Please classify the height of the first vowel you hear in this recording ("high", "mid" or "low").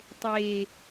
mid